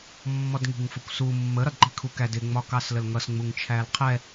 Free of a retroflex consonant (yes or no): yes